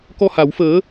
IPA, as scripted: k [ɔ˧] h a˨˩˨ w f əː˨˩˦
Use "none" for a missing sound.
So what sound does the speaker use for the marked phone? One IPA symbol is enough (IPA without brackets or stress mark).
ɔ˧